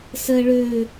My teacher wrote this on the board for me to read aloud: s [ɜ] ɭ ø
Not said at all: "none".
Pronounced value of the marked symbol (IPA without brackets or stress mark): ɜ